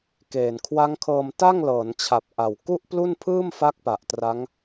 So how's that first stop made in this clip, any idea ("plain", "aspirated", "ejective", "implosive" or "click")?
plain